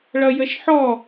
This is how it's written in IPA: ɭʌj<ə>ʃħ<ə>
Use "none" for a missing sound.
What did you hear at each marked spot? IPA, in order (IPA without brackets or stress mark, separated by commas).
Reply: ə, ɔ